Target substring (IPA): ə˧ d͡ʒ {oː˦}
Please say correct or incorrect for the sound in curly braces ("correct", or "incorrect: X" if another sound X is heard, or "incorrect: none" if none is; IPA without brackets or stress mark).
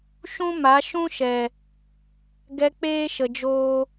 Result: correct